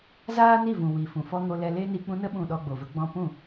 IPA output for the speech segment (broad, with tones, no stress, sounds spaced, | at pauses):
z aː˦ n i˦˨ v ũ˨ w i˨ f ũ˨ f ɔ˦ ŋ o˧ l ɛ˧ l e˦ n i˧ k͡p ũ˧ n ə˧ ɓ ũ˨ ɗ ɔ˧ ɡ͡b o˨ v ə˦ ɡ͡b ɔ̃˧ p ũ˦˨